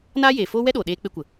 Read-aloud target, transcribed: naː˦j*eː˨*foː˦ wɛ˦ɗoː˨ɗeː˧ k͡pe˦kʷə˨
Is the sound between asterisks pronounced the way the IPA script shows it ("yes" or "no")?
yes